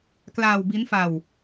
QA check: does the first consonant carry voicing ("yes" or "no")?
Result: no